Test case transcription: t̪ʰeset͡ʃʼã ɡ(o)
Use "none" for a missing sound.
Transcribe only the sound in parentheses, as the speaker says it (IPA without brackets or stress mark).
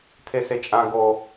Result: o